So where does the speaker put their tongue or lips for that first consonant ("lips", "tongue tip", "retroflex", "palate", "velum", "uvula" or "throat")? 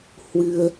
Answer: throat